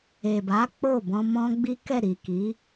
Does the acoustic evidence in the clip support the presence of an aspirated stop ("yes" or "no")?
no